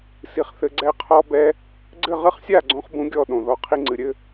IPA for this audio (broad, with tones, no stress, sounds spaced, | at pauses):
s i˧ χ θ ɘ˧ ɡ͡ǀ ɛ˦ qʰ ɔ˦ b ɛ˦ | ɡ͡ǀ ɘ˦˨ ʁ ɨ˦ χ sʲ a˦˨ ɡ͡ǀ õ˦ χ b ũ˧ ɡʲ ɔ˦˨ ɗ õ˨ ð ɔ˧ qʰ i˧ ŋ͡ǀ ɨ˨ ɾʲ ɘ˦